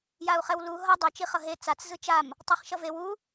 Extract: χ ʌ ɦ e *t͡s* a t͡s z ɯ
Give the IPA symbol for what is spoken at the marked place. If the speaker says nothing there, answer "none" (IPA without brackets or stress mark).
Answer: t͡s